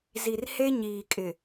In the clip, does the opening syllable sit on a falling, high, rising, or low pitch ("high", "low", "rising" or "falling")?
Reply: low